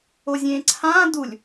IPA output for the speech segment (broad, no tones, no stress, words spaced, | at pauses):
ozʲẽːǀʰãː dulʲ